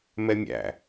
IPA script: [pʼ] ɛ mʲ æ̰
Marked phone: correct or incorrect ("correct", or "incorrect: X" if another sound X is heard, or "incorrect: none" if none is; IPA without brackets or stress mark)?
incorrect: m